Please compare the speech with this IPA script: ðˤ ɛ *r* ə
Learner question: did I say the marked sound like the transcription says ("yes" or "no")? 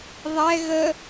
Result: no